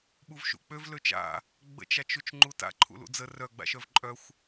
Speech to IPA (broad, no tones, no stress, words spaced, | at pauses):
ɓuvʃṵk͡pøv løt͡ʃa̰ | ɡ͡bə̰t͡ʃat͡ʃut͡ʃ ŋ͡ǃuta̰ ǃʰṵlṵd͡zə rœɡ͡ba̰ʃœv ǃʼœxʷ